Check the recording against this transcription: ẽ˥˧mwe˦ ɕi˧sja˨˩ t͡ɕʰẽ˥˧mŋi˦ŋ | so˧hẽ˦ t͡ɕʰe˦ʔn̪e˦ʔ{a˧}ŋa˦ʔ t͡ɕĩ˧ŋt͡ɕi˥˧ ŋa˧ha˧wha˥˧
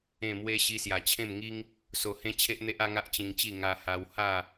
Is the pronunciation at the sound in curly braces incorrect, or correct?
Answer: incorrect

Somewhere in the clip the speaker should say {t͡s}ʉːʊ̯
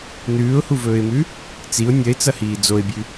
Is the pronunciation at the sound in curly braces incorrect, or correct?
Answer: incorrect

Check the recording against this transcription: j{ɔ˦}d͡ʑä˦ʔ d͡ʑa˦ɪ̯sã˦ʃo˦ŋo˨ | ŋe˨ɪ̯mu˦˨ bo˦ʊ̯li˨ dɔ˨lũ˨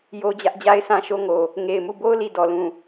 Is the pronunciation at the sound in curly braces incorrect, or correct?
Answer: incorrect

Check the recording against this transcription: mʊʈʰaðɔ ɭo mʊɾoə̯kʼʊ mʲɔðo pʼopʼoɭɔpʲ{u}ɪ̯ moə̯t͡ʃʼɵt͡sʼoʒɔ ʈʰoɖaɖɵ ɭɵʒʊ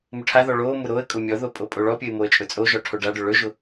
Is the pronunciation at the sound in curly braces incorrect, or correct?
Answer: incorrect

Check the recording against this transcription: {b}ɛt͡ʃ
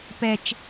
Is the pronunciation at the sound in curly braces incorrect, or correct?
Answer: incorrect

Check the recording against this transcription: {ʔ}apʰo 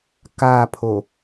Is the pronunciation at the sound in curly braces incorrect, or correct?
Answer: incorrect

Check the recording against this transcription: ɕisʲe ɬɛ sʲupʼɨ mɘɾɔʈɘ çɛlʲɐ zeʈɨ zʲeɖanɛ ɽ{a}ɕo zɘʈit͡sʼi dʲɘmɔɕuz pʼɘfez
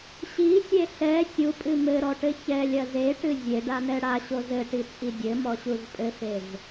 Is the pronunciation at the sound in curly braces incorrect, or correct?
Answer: correct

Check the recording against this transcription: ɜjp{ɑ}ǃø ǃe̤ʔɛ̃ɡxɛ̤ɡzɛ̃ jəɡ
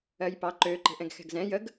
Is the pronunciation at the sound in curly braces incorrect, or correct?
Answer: correct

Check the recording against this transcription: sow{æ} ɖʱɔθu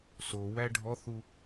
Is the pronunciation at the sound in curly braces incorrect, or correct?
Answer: correct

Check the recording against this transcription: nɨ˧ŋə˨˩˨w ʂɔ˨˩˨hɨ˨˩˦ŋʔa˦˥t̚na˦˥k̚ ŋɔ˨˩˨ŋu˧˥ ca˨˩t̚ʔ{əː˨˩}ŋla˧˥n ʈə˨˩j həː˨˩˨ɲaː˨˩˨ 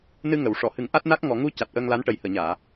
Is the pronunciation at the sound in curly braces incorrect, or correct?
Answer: incorrect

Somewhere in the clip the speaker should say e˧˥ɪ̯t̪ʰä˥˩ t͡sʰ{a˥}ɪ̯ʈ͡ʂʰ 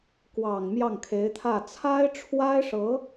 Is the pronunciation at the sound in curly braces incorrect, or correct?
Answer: correct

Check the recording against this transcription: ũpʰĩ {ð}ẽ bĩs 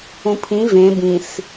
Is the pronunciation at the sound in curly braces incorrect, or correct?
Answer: incorrect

